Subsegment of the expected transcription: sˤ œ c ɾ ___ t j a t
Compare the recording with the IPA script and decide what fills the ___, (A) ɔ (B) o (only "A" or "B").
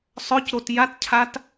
B